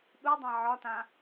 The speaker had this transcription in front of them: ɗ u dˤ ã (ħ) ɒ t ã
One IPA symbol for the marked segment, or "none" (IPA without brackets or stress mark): ʕ